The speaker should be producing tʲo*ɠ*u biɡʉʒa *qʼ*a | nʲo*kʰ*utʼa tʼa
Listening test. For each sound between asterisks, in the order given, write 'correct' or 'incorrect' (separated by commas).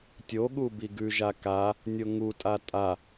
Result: correct, incorrect, incorrect